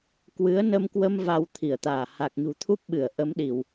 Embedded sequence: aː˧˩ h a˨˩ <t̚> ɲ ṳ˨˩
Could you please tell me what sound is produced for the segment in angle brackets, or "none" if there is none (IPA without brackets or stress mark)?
k̚